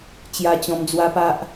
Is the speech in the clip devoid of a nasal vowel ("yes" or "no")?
no